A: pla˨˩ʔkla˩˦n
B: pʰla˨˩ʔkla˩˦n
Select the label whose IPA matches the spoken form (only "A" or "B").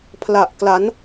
B